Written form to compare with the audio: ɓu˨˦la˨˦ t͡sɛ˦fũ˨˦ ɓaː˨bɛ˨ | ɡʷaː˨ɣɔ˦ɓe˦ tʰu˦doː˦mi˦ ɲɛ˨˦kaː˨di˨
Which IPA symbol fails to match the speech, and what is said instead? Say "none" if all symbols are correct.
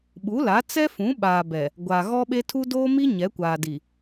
k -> kʷ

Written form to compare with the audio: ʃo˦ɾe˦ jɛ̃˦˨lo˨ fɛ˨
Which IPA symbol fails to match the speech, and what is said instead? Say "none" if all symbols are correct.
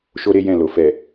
none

